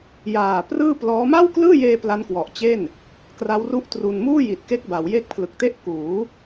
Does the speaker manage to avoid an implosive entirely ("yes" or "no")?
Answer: yes